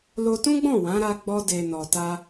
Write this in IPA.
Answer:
l o˧ t ũ˦ ɡ͡b ɔ̃˦˨ w ã˨˦ ɾ a˧ ɡ͡b ɔ˧ d e˨ n ɔ˨ t a˧

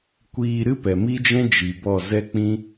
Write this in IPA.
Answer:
kʷ iː˧ ɾ ɨ˦ p ɛ˨ m i˦ d͡ʒ ɛ̃˦ d͡ʒ i˨ b ɔ˦˨ z ɛ˦ k͡p ĩ˦

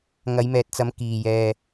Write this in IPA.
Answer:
ŋ ɐ˨˧ j m ɛː˨ t̚ t͡s ɐ˨˧ m k iː˨˩ j ɛː˨

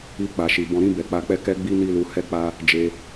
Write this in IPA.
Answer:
i˧ k͡p a˨ ʃ i˨ b ɔ̃˨ ɾ ĩ˧ b ɛ˨ k͡p a˧ k͡p ɛ˦ k ɛ˦ ɡ͡b i˦ n i˦ l u˧ h ɛ˦ k͡p a˦ | d͡ʒ e˧

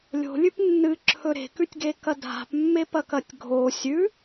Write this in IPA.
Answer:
lʲ o̤ lʲ ʉ p nː ɨ ǁʰ ɵ ɾ e̤ k ʉ tʲ ɡ e k ɐ dʱ a̤ p mː e p ɐ k ɐ tʲ ɡʱ o sʲ ʉ

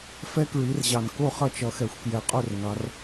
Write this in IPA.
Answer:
f ɛ˦˥ k ɹ i˨˦ r ʑ ɑ˨˩ n k o˥˨ χ ʌ˥˨ t͡ʃ ʌ˨˦ x ɛ˨˦ xʷ k j ɛ˨˦ qʼ o˥˨ r ŋ ɑ˨˦ r

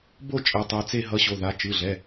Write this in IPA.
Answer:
b o˥˧ t͡ʃʼ ɛ˨˦ tˤ ɯ˩˧˩ t͡s e˥˧ ɦ ʌ˨˦ ɕ o˩˧˩ ð a˩˧˩ t͡ʃ ɯ˩˧˩ ɮ ɛ˩˧˩

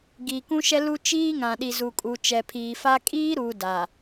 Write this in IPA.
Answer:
ɡ iː˨ k ũ˦ ʃ ɛ˦ l u˦ t͡ʃ iː˦ ŋ ã˨ ɗ i˨ z u˨ kʼ u˨ t͡ʃ ɛ˨ pʰ iː˨ f a˦ kʼ iː˦ ɾ uː˨ d a˨

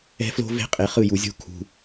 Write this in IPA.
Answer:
ɛ̤˦ f l o̤˦ v e̤˦ qʼ e˨ χ ɯ˦˨ j u˨ zʲ o̤˦ kʰ ṳ˨

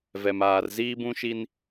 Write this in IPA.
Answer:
v ɛ˨ m aː˨ r z iː˦ b ũ˦ ʃ i˦ n

